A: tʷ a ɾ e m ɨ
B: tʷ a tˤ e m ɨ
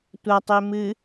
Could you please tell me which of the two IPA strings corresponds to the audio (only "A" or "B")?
B